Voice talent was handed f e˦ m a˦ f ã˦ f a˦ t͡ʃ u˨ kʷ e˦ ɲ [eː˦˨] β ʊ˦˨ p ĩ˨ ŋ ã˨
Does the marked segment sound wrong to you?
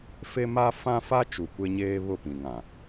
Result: yes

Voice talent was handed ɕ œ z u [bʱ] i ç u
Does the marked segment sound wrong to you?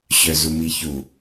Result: yes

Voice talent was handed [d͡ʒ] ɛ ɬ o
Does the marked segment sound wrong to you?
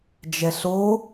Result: no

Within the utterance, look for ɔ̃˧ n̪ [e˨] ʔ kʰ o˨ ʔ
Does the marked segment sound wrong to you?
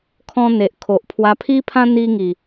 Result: no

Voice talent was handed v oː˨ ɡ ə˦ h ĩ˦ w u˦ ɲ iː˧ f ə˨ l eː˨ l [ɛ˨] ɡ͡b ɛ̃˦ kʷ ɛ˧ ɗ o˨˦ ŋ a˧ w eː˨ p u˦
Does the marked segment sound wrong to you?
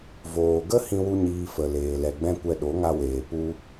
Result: no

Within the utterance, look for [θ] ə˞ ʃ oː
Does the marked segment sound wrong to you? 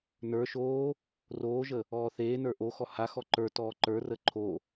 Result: yes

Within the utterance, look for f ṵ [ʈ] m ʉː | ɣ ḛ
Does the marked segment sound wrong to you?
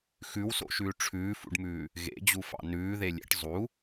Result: yes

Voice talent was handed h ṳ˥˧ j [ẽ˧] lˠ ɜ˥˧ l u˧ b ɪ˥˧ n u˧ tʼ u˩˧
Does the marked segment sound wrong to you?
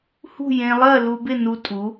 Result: no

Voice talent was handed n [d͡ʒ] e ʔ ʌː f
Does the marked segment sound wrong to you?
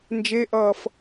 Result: no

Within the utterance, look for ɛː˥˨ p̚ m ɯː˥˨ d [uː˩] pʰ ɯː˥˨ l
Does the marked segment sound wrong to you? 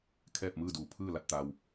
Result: yes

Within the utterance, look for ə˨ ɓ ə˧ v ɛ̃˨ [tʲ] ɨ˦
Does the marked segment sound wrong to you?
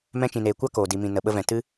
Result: yes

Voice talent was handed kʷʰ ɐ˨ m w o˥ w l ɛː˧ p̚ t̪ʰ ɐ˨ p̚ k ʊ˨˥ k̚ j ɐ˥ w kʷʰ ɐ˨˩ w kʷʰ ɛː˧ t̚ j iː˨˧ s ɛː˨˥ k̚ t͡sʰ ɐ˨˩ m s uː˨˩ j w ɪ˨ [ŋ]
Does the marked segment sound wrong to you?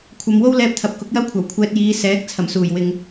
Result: no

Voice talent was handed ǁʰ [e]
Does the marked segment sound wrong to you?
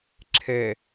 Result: yes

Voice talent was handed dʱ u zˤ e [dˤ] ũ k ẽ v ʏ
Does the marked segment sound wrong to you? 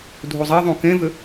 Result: yes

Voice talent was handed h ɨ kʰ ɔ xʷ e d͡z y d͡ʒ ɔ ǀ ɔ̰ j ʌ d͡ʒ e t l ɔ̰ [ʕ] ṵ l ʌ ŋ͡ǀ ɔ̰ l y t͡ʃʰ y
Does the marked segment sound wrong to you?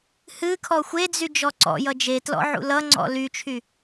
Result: no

